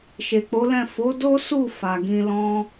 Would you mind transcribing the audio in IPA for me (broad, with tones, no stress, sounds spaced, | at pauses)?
ʃ e˨ k͡p o˨˦ l ɛ̃˦˨ f o˨˦ d o˦ s u˦˨ f a˨ ɡ ĩ˧ l ɔ̃˦